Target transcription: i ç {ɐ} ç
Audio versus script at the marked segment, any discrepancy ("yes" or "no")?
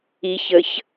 yes